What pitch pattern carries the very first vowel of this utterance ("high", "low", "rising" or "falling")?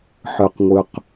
low